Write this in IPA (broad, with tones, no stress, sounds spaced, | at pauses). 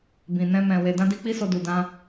b ĩ˨ n ɛ̃˧ m ɛ̃˨ w e˨ d ã˧ d i˧ k͡p i˦ s o˧ d u˨ d ã˧